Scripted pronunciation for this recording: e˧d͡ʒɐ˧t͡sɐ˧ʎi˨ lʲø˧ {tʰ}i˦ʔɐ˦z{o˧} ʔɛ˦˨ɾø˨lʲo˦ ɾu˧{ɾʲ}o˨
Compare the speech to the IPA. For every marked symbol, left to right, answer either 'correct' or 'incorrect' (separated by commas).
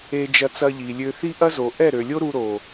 incorrect, incorrect, incorrect